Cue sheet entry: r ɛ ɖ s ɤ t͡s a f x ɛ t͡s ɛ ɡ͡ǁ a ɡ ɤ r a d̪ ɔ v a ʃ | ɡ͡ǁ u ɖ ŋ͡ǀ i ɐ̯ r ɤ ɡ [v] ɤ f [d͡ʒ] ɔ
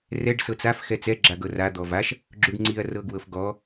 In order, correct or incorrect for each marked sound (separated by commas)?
incorrect, incorrect